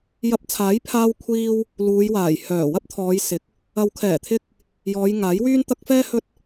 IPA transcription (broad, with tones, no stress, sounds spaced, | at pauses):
j ɐ˧ p̚ t͡sʰ aː˨˥ j pʰ aː˧ w kʷʰ iː˧ w | l uː˨˧ j w aː˨˩ j h œː˨˩ w ɐ˥ p̚ t̪ʰ ɔː˨˧ j s ɪ˨˥ k̚ | ɐ˨ w kʰ ɛː˨˩ t̪ʰ ɪ˧ k̚ | j ɔː˨˧ j ŋ aː˨˥ j w yː˥ n t̪ ɐ˥ k̚ f ɛː˥ h ɵ˥ t̚